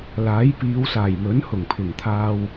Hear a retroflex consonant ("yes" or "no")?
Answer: no